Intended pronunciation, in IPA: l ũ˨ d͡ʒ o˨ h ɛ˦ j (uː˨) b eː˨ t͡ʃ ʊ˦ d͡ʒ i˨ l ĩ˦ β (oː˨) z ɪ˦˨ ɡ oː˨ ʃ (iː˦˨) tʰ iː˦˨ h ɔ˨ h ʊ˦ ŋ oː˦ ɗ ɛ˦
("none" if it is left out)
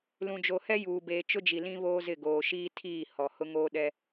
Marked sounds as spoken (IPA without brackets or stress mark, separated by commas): uː˨, oː˦, iː˦